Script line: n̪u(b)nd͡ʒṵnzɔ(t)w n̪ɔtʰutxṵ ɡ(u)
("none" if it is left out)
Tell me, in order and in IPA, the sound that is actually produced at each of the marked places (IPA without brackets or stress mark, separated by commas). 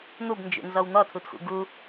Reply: b, none, u